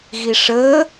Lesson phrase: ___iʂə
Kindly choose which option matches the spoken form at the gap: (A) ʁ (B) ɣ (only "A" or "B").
B